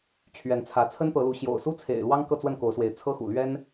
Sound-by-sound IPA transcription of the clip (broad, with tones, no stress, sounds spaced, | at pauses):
t͡ɕʰ ɥ ɛ˨˦ n t͡sʰ ä˨˦ t͡sʰ ə˦ n t̪ ɤ˨˦ l u˨˦ ɕ j o̰˨˩ ʊ̯ s u˦ t͡sʰ ḛ˨˩ ɪ̯ l w ɑ˦ ŋ k ɤ˥˨ t͡s w ə˥˨ n k o˨˦ ʊ̯ s w e˨˦ ɪ̯ t͡sʰ ɤ˦ x ṵ˨˩ l ɥ ɛ˦ n